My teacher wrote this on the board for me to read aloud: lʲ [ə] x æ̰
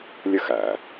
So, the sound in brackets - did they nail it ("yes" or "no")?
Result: yes